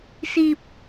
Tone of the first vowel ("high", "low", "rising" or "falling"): high